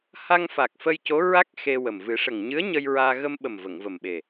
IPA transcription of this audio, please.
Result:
h a˧ ŋ f a˨˩ k̚ f ə˧ j c o˧˥ ɹ a˦˥ k̚ x e˧ w ə˨˩ m v ɨ˨˩˦ ʂ ə˨˩ ŋ ɲ ɨ˧˥ ə̯ ɲ ə˧ j ɹ aː˧ ɣ ə˧ m ɓ ə˨˩ m v ə˨˩˨ ŋ v ə˨˩ m ɓ e˨˩

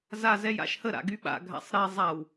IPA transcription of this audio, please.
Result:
z a z ɛ j a̰ ʃ h ə ɾ a̰ ɡ y ɓ a̰ ɡʱ a̰ sˤ ɾ e zˤ a w

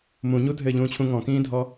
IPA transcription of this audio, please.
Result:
m ũ ɲ u dʱ ɘː ʎ ũː t͡ɕʰ ũ ŋ ɔ̃ k ĩː dʱ ɔ

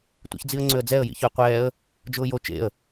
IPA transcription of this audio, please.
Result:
tʷ ḭ ç d͡z i ə̯ ŋ͡ǀ ʏ ə̯ d͡z ɛ ə̯ j ḭ ç ʏ ə̯ qʷ ɛː ə̯ | d͡ʒ ʊː j o t͡ʃ ḛ ə̯

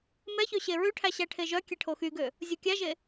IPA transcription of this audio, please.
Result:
m ɛ ç ø ɕ e ɹ ʉ ʈʰ æ ɕ æ ʈʰ e ʒ œ kʲ ɛ ʈʰ o x y ɡ ø | zʲ o kʲ æ ʒ e

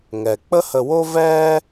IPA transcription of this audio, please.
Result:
ŋ ɛ˩ k͡p ə˥ h ə˧ w o˥ v ɛː˥

